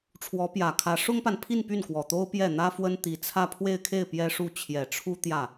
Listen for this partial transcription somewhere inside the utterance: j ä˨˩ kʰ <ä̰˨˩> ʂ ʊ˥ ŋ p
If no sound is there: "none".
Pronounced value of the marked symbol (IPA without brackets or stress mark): ä˧˥